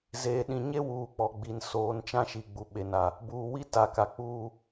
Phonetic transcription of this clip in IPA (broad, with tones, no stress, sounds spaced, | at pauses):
z eː˨ ɗ ĩ˨ ɲ e˦ w uː˨˦ k͡p ɔ˨ ɡ͡b i˨ n s oː˨˦ n t͡ʃ ã˦ ʃ i˨ ɡ͡b u˨ ɓ e˨ n a˨ | b uː˨ w i˦ t a˨ k a˨ k͡p uː˦